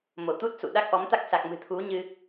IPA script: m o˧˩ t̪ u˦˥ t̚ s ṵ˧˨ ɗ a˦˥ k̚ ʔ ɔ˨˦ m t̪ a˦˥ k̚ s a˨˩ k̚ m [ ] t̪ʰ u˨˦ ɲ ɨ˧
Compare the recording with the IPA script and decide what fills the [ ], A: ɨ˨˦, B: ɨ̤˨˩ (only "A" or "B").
B